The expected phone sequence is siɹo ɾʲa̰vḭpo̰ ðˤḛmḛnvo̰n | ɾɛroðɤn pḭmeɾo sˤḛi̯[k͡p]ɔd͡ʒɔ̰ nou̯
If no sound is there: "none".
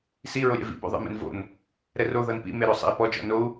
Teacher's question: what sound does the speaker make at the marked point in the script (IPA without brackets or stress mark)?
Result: p